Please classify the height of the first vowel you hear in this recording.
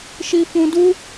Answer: high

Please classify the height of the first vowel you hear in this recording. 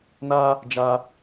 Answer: low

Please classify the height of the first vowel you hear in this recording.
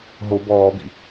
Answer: mid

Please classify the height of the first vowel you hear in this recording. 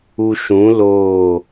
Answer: high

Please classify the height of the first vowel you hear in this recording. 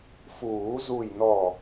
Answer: high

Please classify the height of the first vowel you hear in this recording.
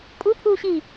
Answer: high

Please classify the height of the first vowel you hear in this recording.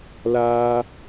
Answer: low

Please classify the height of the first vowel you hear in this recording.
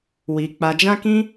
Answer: high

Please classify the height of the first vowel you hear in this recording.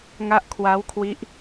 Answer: low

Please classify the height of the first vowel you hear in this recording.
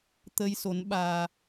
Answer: mid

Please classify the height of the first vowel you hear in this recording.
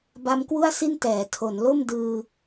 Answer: low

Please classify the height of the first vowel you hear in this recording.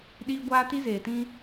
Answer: high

